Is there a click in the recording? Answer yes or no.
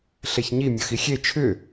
no